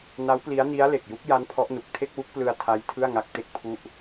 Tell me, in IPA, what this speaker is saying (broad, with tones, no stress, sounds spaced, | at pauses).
n a˦˥ w p l i˦˥ a̯ n i˦˥ a̯ l e˨˩ k̚ j u˦˥ k̚ j a˦˥ n pʰ ɔ˦˥ ʔ n u˨˩ k̚ tʰ e˥˩ k̚ w u˦˥ k̚ p l ɯ˧ a̯ tʰ a˦˥ j tʰ ɯ˥˩ a̯ ŋ a˦˥ k̚ t e˥˩ k̚ pʰ u˥˩ ʔ